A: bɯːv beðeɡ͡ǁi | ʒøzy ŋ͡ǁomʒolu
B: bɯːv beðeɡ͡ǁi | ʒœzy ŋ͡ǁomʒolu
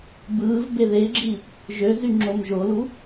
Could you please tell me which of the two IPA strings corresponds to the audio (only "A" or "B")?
A